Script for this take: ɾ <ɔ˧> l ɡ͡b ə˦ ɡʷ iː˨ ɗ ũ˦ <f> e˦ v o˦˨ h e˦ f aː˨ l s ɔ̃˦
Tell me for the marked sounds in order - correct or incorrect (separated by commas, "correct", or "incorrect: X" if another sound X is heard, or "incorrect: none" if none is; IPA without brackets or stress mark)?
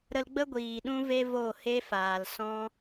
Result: incorrect: ə˧, incorrect: v